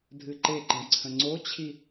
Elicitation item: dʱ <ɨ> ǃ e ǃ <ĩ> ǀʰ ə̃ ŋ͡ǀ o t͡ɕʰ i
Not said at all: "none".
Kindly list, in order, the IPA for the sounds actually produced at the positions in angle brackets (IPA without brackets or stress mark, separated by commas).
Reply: ɨ, ĩ